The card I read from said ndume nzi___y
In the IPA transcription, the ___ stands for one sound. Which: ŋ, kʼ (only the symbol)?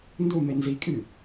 kʼ